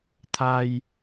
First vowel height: low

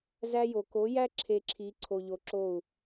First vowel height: low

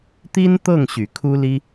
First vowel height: high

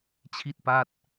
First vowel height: high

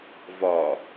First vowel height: low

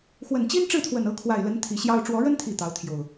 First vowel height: mid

